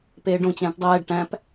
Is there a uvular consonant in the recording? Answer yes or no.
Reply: no